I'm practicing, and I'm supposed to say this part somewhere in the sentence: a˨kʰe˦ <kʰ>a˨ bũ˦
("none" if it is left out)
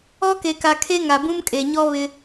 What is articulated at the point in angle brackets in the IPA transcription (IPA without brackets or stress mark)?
ŋ